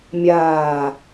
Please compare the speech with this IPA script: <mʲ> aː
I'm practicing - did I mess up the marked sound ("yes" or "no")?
no